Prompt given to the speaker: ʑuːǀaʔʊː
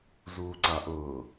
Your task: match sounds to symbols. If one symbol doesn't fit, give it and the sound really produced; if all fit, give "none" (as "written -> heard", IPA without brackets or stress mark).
ʑ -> z